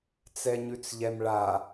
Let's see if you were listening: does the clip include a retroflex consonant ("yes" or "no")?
yes